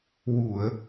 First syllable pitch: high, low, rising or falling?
low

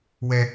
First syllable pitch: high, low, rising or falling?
high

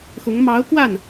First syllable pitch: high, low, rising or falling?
rising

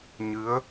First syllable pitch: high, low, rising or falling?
rising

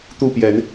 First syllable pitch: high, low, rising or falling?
falling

